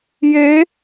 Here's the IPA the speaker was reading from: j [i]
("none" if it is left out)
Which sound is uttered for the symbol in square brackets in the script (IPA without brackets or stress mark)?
e